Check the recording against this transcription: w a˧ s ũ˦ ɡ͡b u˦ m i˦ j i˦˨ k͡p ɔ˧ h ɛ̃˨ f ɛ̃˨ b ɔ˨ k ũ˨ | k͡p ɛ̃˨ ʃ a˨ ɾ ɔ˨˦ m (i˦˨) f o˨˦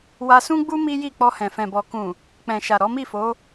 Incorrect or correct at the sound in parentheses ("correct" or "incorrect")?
correct